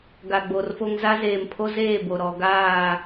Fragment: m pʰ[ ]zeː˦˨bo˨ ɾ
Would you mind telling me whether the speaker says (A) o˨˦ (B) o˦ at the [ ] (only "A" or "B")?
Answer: B